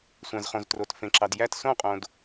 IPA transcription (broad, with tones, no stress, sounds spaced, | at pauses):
sʷ æ̃˩ z χ õ˩ z t r o˩ t f ẽ˩ ǁ ɑ˩ d j æ˥˩ t s õ˥˩ qʼ õ˩ d